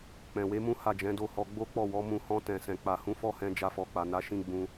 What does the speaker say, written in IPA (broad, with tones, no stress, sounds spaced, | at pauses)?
k͡p ɛ̃˨ w e˨˦ m ũ˦ h a˦˨ d͡ʒ ɛ̃˨˦ d o˦ h ɔ˧ ɡ͡b o˦ k͡p ɔ˦˨ w ɔ˨˦ m ũ˧ h ɔ̃˧ t ɛ̃˨ s ɛ̃˨ k͡p a˨ h ũ˨˦ f ɔ˦ h ɛ̃˧ d͡ʒ a˧ f ɔ˨ k͡p a˨ n a˨˦ ʃ ĩ˧ ɡ͡b ũ˦